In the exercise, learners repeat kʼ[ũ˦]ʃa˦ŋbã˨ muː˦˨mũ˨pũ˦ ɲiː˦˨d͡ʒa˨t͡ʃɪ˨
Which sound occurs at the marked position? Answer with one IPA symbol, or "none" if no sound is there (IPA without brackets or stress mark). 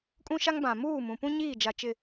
ũ˦